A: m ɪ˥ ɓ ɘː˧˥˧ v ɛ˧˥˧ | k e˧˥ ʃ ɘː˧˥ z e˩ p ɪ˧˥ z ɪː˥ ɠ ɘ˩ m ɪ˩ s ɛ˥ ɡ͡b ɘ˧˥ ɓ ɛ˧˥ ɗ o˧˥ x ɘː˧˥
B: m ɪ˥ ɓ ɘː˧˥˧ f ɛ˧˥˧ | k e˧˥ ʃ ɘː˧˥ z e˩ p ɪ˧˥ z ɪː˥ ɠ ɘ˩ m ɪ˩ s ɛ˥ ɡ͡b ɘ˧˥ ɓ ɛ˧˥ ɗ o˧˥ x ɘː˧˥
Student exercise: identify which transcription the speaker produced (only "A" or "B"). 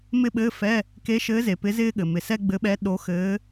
B